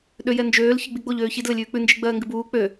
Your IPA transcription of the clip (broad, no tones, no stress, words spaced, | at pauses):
ɗøjɛnd͡ʒøːl çɨɡ͡biɡ͡boʎ øːçid ləlʲʉːk͡pʉ nd͡ʒiɡ͡bɜːŋɡɨbuː k͡pø